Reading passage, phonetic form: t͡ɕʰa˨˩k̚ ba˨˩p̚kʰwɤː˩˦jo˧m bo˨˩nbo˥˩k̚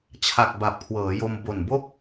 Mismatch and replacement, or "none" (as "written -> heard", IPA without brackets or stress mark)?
none